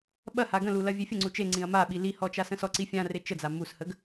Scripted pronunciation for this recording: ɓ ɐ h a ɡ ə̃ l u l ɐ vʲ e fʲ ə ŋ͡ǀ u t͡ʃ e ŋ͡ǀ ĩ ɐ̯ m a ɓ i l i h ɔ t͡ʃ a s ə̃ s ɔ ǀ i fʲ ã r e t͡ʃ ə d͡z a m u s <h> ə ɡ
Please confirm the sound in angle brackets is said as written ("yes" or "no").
yes